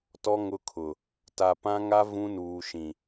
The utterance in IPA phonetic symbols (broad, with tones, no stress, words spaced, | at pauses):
tɔ˦ ŋʊ˦kʰʊ˨ | ta˨pã˦ŋa˦ vũ˦nuː˨ʃĩ˨